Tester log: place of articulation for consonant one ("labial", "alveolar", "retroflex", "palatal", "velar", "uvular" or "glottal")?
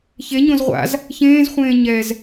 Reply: palatal